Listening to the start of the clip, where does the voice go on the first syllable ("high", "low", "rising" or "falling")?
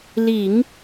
low